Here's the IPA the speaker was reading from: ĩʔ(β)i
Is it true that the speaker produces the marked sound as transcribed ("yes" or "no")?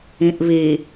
yes